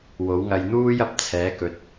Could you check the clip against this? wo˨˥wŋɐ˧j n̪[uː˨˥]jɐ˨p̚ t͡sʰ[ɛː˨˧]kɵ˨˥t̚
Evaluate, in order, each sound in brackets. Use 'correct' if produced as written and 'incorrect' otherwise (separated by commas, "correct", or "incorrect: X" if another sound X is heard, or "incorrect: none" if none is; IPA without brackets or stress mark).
incorrect: uː˥, incorrect: ɛː˨˥